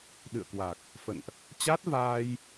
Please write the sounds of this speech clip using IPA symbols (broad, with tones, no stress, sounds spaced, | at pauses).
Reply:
ɗ ɨ̰˧˨ ə̯ k w a˨˩ k̚ | f ə̰˧˨ n ʔ | t͡ɕ a˦˥ t̚ v aː˧ j